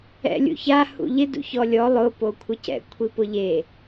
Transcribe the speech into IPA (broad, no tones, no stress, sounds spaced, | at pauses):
ɛ̰ lʲ ṵ ç a h ṵ ʎ ɪ d ṵ ç ɔ lʲ ɔ lˠ ʊ p o kʷʰ ɪ c ɛ̰ kʷʰ i p ʊ ʎ e